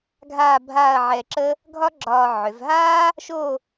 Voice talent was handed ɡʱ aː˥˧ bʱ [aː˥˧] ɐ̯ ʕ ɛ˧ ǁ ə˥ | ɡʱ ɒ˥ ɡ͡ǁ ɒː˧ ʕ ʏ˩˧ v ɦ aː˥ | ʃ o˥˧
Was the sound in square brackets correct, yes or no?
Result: yes